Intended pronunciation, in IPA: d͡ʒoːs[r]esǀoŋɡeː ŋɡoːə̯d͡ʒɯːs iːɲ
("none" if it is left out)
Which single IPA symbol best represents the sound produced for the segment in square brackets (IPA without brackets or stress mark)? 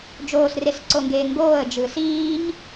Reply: r